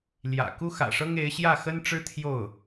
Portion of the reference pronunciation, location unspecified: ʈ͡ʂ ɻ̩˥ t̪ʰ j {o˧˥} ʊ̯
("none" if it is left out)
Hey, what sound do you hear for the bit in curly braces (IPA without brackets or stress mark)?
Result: o˥˩